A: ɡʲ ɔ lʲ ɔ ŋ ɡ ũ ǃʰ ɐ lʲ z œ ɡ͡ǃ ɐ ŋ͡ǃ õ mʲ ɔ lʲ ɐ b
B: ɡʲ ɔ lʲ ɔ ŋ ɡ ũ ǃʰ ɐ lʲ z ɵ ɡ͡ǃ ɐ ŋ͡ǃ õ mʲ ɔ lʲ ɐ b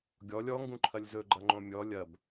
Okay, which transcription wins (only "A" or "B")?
B